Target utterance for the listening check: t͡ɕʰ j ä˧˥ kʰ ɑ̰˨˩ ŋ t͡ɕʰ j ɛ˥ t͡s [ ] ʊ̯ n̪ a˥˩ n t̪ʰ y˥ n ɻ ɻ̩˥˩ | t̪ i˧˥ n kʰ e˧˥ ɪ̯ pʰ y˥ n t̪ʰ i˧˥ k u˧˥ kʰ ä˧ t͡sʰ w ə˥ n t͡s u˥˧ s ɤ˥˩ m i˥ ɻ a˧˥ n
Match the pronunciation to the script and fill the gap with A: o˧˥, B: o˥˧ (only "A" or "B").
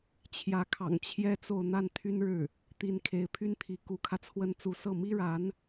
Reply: B